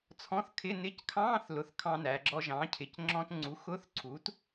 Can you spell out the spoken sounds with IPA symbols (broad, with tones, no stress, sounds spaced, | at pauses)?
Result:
t͡sʰ ɔ̃˧˥˧ θ kʰ ɪ˧˥˧ n ɪ˧˥˧ c kʰ ɑ̃ː˧˥˧ θ l ʊ˩˧˩ θ kʰ ɑ̃˧ n æ˩˧ ɡ͡ǁ ɔ˧ ʒ ɑ̃ː˩˥ cʰ ɪ˩˧ c ŋ͡ǁ ɔ̃˧ t ŋ͡ǀ u˩˥ x ʊ˧˥˧ θ ǀʰ u˩˥ t